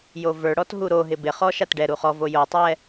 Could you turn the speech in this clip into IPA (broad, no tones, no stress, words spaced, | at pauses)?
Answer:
jovə˞ɽɔt ɦuɾoɦɪ bɪχɔ ʃatɖɛɾu χɔvo jotˤɛ